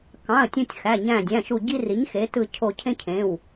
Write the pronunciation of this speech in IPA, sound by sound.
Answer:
k ɑ̃˩˧˩ ə̯ tʲ ũ˧˩ tʲ x æ˩˧˩ ɲ æ̃˧˩ dʲ æ̃˩˧˩ ʃ u˧˩ ɟ i˦ r i˩˥ ɲ x e˩˥ t ɯ˧˩ cʰ o˧˩ cʰ ẽ˦ cʰ ẽ˩˧˩ w

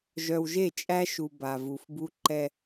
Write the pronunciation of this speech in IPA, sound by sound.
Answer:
ʒ œ˨ w ʒ e˦˨ t͡ʃʼ æ˦ ʃ u˨ b a˨ v u˨ f b u˦ ǃ ɛ˦

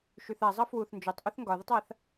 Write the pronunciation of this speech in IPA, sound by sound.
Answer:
ʃ y θ a zˤ ʌ f w u θ n d͡ʒ o tˤ ʔ u θ ŋ ɡ ɒ ð ə tˤ a θ

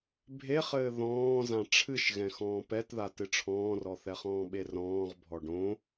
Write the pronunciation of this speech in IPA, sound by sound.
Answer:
bʱ e χ ɘː ð ɔ̃ː z ã ʈ͡ʂʰ ɨ ʃ ɣ ɛ̃ x ɔ̃ː p ɛ t ð a t ɨ ʈ͡ʂʰ ɔ̃ː r ɔ θ ɛ χ ɔ̃ː ɓ e r ɔ̃ː ʁ bʱ ɔ ɖ õ

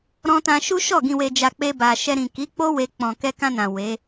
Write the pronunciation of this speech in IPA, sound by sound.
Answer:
ɾ ɔ̃˧ t ã˧ ʃ u˦ ʃ ɔ˦˨ ɡ ĩ˨ w e˨ d͡ʒ a˨ k͡p e˧ b a˨ ʃ ɛ˧ ɾ ĩ˨ k i˨˦ k͡p o˦ w e˧ k͡p ɔ̃˨ k ɛ˧ k ã˧ n ã˨ w e˨˦

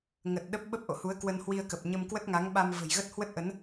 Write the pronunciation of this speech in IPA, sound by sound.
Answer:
ŋ ə˨˩ t̚ ɗ ə˦˥ p̚ ɓ ə˦˥ p̚ ʔ o̰˧˨ h u˨˦ ə̯ k w ə˧ n h w i˧ ə̯ k ə˨˩ p̚ ɲ ə˧ m k w ə˦˥ t̚ ŋ a˨˦ ŋ ɓ a˧ m v ə̤˨˩ j ɣ ə˦˥ t̚ h w ə˦˥ t̚ ʔ ə˨˦ n

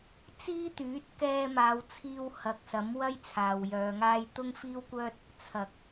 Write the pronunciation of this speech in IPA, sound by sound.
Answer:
t͡s iː˥ t̪ yː˨˥ t̚ k ɛː˧ m aː˨˧ w t͡sʰ iː˧ w h ɐ˨ k̚ s ɐ˨˥ m w ɐ˥ j t͡sʰ aː˨ w j œː˨˧ ŋ aː˥ j t̪ ʊ˥ ŋ f iː˥ w kʷ œː˥ t̚ | t͡sʰ ɐ˨ k̚

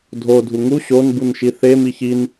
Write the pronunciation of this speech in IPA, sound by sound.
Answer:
dʱ o dʱ u ŋ u ɕ o n b u n ʃ i θ e m i ç i n

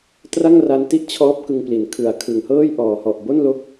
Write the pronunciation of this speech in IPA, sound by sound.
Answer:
t r a˥˩ ŋ r a˧ n t i˦˥ ʔ t͡ɕʰ ɔː˦˥ p̚ k ɯ˧ ŋ p l i˨˩ n kʰ ɯ˨˩ a̯ kʰ ɯ˨˩ ŋ h ɤː˥˩ j ʔ ɔː˨˩ h ɔ˨˩ ʔ b o˥˩ n l o˦˥ k̚

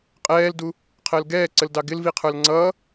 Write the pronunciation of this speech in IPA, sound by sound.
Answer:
qʼ ɛː l d u | qʰ əː l ɡ ɛː ǀ ə l d ɑ ɡ ɪ l v i qʰ ə˞ l ŋ͡ǀ ʌː

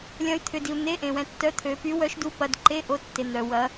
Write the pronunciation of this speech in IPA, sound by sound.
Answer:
lʲ ɐ̃˧˥ y̯ t̪ʰ ʏ˨ d i˨ u̯ n̪ e˧˥˧ ʔ ẽ˨ w ɛ̃˨ tː œ˧˥ t̪ʰ ø˨ p y˧˥ w œ˧˥ ʃ d u˧˥ p ɐ˧˥˧ d ǃ e˧˥˧ ʔ o˧˥˧ tː e˨ n̪ œ˨ w ɐ˧˥

